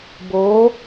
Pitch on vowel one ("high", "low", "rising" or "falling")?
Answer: rising